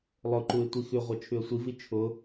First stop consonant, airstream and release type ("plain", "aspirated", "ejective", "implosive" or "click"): click